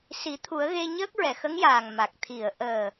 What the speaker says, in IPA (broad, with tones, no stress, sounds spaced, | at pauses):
s i˨˩˦ t̪ʰ u˨˩˦ ə̯ ɣ e˧ ɲ əː˦˥ k̚ ɹ ɛ˨˩˨ x ə˧˥ ŋ j aː˨˩ ŋ m a˨˩ k̚ t̪ʰ i˨˩˨ ə̯ ʔ əː˨˩